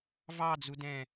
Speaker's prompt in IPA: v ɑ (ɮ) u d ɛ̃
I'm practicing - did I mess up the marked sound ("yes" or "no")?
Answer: yes